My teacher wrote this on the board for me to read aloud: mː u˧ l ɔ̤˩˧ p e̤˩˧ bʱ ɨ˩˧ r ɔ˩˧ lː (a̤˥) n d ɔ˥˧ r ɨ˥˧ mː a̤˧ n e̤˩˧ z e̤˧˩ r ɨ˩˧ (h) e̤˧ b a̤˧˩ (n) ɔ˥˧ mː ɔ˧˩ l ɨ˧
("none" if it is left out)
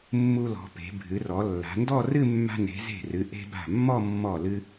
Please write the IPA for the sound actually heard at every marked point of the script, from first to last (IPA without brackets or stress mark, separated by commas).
a̤˩˧, ʔ, mː